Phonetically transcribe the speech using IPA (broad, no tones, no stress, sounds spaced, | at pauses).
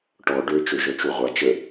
ʈ ɔ ɖ ø t͡ʃ ø ʒ œ t͡ʃ u ʁʷ a t͡ʃ ə